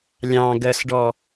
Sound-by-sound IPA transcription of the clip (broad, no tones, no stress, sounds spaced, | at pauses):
lʲ ɑ̃ ɡ ɜ s ɖ ɔ